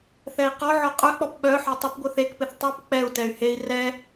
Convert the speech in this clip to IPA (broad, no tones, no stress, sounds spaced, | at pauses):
θ ɛ i̯ q ɔ ʕ ɔ qʼ œ k͡p ɔ p ɓ œ ħ ɔ tˤ ɪ p ɡʷ œ θ e k p ɪ θ tˤ o p k͡p ɛ u̯ t ɛ y̯ h e i̯ r ɛ